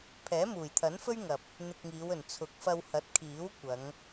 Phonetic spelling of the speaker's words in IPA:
pʰɛː˨˥muː˨˩jt̪ʰɐ˨˥nfɵ˥ɥ ŋɐ˨p̚ | n̪ɪ˧k̚ŋiː˨˧wɵ˨˩n t͡sʰʊ˨˥k̚fɐ˧w hɐ˨˥t̚kʰiː˨˥w kʷɐ˨˧ŋ

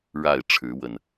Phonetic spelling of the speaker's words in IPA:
ɻa˥˨ɪ̯ ʈ͡ʂʰɻ̩˨˦wə˨˩n

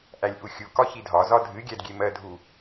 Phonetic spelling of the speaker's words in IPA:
ʔælʲʔuxʲu kɒçidʱɒ zɒdʱɨ ɡʲædɡʲemɜdʱu

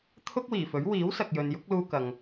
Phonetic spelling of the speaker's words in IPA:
t̪ʰʊ˥k̚wiː˨˩fɵ˨˥ɥ wiː˨˥wsɐ˨k̚jɵ˨n jʊ˨˥k̚luː˧kɐ˨ŋ

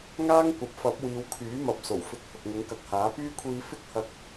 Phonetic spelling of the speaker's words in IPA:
ŋaː˥ŋkʷɐ˨p̚fɐ˨˥p̚ wiː˨˧wkʰyː˨˥mɐ˨p̚ so˨˩wfɪ˨˥k̚ hʊ˨k̚ŋʊ˨˥ŋkɐ˨k̚haː˨˥ pyː˥kʷʰiː˧ fɪ˥k̚hɐ˧k̚

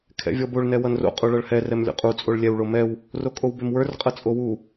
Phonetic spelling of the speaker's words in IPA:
kʰɛ̰vʲɔboɭ nɛwʌnro̰ qʼuɭʌɭhɛ rɛmlʲo̰qʼu t͡sʼoɭlʲɛw ɭomɛw | rokʼowbemwə˞r qʼʌt͡sʼowu

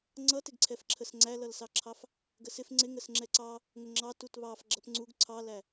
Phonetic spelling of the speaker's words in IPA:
ŋ͡ǀʌtɪɡǀʰɛfǁʰəs ŋ͡ǀælʌlsɑǁʰɑf | ɡəsɪf ŋ͡ǀɪ ŋəsŋ͡ǁɛǀɑ | ŋʊŋ͡ǁɑ tutβɑf ɡ͡ǁʌpŋ͡ǀuɡ ǀʰɑlæ

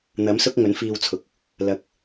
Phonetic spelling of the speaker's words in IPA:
n̪ɐ˨˥msʊ˥k̚ ŋɵ˨˥nfiː˧wt͡sʰʊ˨k̚ | lɐ˨˥k̚

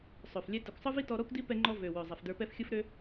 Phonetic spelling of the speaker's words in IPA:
sˤø˨f lʲɛ˧ tɯ˨kʷsˤɯ˦vi˦ tɔ˧ɾɔ˦kʷdi˦ pɛ˧ŋ͡ǃɔ˧ vø˨ wø˨zˤɛ˨fdə˞˧pɛ˦f xʲɯ˦fɾø˦

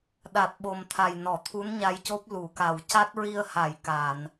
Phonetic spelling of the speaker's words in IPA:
ɗa˨˩t̚ɓo˨˩mt̪ʰa˨˩jnɔ˨˩˨ t̪ʰu˧˥nɲa˧jco˦˥p̚ lu˨˩˨ka˨˩w ca˦˥t̚ɹi˧ə̯ ha˨˩˨j ka˨˩˨n

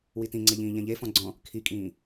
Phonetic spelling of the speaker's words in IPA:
witĩŋ͡ǀɛʎĩː ʎɛ̃ʎe fɔ̃ɡ͡ǀɔ̃ | kʰikʼĩː

